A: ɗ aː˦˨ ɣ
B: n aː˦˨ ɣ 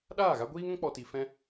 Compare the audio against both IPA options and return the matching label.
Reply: A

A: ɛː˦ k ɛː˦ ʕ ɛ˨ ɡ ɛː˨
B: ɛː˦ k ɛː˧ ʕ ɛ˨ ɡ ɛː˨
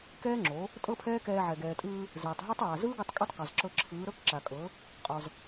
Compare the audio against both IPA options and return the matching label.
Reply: B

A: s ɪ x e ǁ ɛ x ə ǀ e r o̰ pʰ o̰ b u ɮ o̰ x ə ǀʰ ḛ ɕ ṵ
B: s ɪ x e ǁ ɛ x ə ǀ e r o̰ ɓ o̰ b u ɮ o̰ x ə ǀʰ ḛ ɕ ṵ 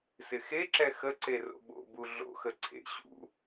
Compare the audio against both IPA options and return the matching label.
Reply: B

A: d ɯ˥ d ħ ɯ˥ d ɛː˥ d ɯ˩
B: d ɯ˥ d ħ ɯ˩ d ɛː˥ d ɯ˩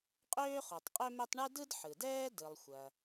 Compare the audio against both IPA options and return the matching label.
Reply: B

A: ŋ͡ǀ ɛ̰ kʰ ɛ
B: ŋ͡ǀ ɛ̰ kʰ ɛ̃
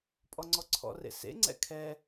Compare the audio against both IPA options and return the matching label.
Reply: A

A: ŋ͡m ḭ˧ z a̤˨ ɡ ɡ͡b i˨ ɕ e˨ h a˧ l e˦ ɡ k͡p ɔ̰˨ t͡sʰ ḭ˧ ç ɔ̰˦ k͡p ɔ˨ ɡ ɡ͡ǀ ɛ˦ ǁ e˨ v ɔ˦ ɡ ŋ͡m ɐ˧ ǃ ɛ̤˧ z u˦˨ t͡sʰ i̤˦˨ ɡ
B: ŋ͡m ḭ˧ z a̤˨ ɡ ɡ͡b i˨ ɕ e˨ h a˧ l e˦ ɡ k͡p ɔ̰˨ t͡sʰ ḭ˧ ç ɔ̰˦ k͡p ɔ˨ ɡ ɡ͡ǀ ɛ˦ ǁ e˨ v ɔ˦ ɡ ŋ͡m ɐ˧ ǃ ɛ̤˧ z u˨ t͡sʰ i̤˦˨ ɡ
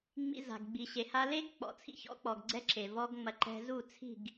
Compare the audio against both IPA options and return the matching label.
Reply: A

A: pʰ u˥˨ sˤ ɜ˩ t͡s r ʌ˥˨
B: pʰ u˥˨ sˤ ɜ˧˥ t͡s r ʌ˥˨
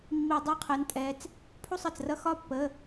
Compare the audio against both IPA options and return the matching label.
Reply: A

